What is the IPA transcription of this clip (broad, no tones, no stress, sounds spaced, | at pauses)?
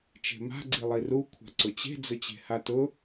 t͡ʃ e̤ m a̤ ɡ͡ǀ i lˠ i r u kʷʰ a̤ ǀ ʊ t͡ɕ e̤ d͡z ʊ t͡ɕ e̤ h a t ʊ